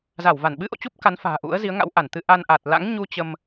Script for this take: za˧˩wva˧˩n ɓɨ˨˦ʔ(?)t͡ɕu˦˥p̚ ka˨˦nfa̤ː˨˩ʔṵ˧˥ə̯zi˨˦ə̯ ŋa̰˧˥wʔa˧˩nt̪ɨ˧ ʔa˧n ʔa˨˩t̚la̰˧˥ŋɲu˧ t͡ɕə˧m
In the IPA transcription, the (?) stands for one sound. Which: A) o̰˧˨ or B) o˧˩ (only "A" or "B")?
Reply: A